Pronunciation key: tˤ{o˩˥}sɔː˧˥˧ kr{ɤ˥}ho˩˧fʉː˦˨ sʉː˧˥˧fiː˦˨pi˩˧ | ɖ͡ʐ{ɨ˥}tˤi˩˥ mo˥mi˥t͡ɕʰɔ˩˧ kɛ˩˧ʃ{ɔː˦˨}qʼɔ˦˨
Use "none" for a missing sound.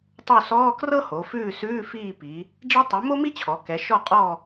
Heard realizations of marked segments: o˦˨, ɤ˥, ɛ˥, ɔ˦˨

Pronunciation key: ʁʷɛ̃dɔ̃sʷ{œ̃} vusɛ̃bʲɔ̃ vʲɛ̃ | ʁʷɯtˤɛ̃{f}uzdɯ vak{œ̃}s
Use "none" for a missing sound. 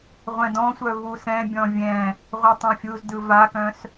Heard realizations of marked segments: œ, fʲ, œ̃

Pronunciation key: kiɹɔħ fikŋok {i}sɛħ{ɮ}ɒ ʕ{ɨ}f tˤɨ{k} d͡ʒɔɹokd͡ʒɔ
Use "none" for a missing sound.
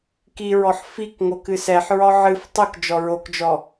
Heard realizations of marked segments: ɨ, ɹ, ɨ, k

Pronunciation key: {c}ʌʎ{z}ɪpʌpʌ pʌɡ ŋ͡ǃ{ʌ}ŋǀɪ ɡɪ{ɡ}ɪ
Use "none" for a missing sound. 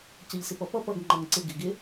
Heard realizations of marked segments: c, s, ʌ, ɡ

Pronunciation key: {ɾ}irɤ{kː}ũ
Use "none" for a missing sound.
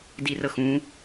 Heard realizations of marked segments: d, x

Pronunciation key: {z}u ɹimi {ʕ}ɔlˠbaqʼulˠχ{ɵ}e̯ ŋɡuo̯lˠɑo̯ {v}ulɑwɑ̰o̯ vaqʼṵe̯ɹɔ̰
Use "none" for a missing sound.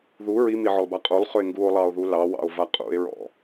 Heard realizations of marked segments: ð, ʕ, ɵ, ð

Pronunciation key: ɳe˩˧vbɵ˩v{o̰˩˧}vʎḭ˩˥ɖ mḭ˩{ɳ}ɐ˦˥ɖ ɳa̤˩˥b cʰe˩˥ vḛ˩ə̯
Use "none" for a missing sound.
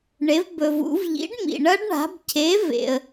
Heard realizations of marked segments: ṵ˩˧, ɳ

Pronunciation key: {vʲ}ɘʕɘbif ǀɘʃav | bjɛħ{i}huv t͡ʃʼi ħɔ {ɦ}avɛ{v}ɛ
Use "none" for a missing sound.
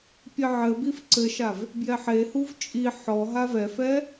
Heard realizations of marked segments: pʲ, e, ɦ, f

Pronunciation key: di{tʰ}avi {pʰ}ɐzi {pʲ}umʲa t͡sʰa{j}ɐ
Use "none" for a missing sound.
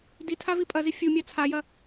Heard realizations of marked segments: tʰ, pʼ, fʲ, j

